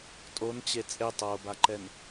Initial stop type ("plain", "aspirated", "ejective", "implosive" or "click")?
ejective